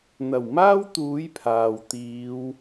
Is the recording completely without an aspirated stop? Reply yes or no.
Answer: no